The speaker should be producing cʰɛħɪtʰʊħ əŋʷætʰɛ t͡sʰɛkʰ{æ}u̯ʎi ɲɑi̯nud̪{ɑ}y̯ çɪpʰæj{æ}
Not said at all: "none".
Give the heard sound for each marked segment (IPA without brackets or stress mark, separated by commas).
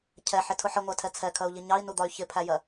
ɜ, ɒ, ɜ